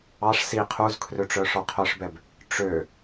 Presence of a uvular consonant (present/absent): present